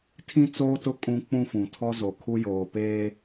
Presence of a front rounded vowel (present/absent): absent